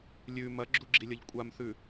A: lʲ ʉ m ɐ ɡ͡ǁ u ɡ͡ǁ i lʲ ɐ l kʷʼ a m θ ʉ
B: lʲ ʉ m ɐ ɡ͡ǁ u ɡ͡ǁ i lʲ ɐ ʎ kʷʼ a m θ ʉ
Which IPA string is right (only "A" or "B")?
B